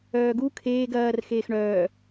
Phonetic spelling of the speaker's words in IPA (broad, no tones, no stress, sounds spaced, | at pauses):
œː ɡ u kʰ eː ɡ ɐː r x eː x ɳ œː